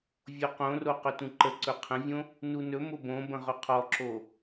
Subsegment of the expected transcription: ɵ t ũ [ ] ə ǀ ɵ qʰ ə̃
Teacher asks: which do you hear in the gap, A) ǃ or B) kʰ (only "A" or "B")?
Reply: A